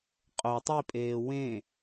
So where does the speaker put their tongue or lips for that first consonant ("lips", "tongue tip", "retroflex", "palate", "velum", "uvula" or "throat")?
uvula